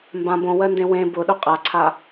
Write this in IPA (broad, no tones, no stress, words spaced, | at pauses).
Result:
mbã bõwɜndẽ wẽ bʊɗʊ qʼaǀʰa